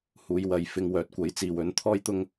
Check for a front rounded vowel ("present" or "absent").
present